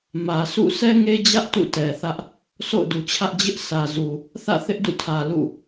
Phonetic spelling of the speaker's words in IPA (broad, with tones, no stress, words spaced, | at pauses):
mä˨sʰṵ˦˨ sʰɛ˦ŋe˦d͡ʑä˦ʔ tṵ˦˨tɛ˨θä˦ʔ | so̰˦˨ʊ̯du˨t͡ɕʰä˦ʔ d͡ʑɪ˦ʔ sʰä˨zu˨ | θä̰˦˨θɪ˦ʔdṵ˦˨tʰä˨ lṵ˦˨